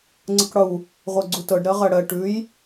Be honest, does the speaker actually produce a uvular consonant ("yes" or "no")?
yes